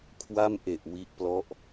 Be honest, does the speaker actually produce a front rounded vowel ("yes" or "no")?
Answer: no